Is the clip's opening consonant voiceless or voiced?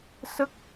voiceless